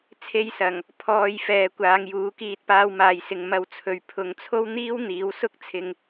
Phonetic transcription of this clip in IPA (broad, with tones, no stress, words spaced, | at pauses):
t͡sʰe˧jsɐ˨˩ŋ | pʰɔː˨j fɛː˨kʷaː˨˧ŋjuː˨˥kiː˧t̚ paː˧wmaː˨jsɪ˨ŋ mɐ˧wt͡sʰɵ˨ɥ pʰʊ˨ŋt͡sʰo˥w n̪iː˥wn̪iː˨˥wsʊ˥k̚t͡sʰɪ˧ŋ